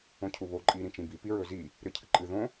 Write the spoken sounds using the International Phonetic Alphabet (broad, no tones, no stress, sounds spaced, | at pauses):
õ cʰ u β o ǃʼ i ɾ ĩ t͡ʃ ĩ b i p i ɹ ɵ z i | ɾ ɨ cʰ ɨ ǃʼ ɨ ð õ